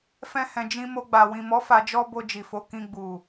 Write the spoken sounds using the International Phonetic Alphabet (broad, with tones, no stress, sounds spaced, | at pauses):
f ɛ̃˧ h ɛ̃˨ d͡ʒ ĩ˧ m o˧ ɡ͡b a˨ w ĩ˨ m ɔ˨˦ f a˧ d͡ʒ ɔ˦ b o˧ d͡ʒ i˨ f o˨˦ k ĩ˧ ɡ͡b u˨